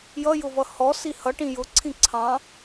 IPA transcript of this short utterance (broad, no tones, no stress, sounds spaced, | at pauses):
j ʌ j ʊ v ʌ h ɔ s i h ʌ ʈ ĩ j ʊ ǀʰ ĩ ǀʰ ɑ̃